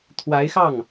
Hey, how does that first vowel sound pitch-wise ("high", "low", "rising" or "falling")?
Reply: rising